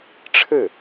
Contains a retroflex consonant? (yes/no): yes